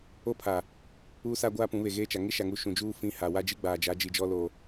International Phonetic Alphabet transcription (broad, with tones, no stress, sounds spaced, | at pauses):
o˦ pʰ a˨ | uː˦ s a˦ ɡʷ aː˦ p ũ˨˦ β e˨ ɣ eː˦ t͡ʃ a˨ ŋ ɪ˦ ʃ a˨ ŋ u˨ ʃ ũ˨ d͡ʒ uː˦ f ĩ˦ h a˨ w a˦ d͡ʒ i˦ ɡ͡b aː˨ d͡ʒ a˨˦ d͡ʒ i˨ d͡ʒ ɔ˦ l o˨